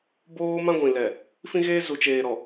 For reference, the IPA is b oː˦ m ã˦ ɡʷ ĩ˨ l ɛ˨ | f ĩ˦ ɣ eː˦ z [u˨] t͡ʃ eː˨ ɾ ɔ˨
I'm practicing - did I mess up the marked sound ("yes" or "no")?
no